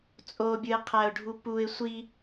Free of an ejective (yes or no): no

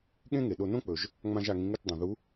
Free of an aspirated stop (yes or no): yes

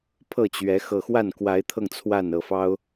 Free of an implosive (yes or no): yes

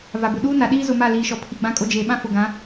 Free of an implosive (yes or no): no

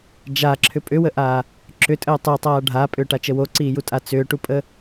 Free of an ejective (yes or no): no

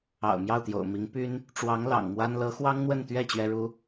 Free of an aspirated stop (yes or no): yes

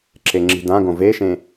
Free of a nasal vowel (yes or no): no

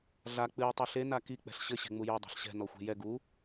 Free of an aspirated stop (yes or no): yes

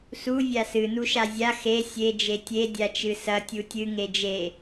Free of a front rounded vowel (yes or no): yes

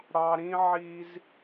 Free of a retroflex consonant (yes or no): no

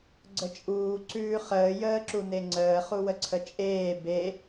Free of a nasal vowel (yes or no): yes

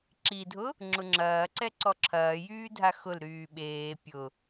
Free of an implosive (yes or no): no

